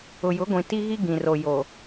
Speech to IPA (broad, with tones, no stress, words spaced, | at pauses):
ʊ˨jʊ˨˦ɡʷĩ˨ ti˦ɣi˦ɡĩ˨ro˨ jo˨